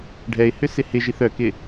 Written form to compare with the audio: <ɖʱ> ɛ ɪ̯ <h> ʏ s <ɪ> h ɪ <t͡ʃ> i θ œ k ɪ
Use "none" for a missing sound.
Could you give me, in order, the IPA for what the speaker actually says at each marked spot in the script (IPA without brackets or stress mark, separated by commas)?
ɖʱ, h, ɪ, ʒ